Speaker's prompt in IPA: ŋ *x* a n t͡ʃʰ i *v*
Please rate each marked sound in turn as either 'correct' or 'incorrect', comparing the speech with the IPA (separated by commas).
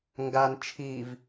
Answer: incorrect, correct